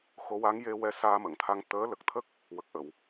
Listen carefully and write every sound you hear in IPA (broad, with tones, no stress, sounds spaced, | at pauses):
x o˧˥ w a˧˥ ŋ j e˧ w ɛ˧˥ s aː˧ m ə˨˩˨ ŋ t̪ʰ a˧ ŋ t̪ əː˧˥ l ə˨˩ k̚ t̪ʰ ə˦˥ k̚ | w ə˨˩ k̚ ʔ ə˨˩˨ w